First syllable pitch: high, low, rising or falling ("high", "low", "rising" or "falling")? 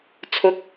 rising